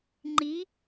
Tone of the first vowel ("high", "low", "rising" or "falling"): rising